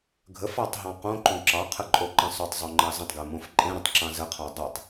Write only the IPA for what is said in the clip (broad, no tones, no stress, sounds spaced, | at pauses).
ɡʱ ə f ɑ tˤ ɦ ɑ̃ q õ ǃ õ ǁ ɑ qʰ ə ǃʼ o ǃ ə̃ sˤ o tˤ zˤ o ŋ͡ǃ ɑ z ə̃ tˤ ɡ e m õ f ǃʼ ẽ ɾ ə̃ tˤ ǁ ɑ̃ z ə qʰ ɑ dˤ e tˤ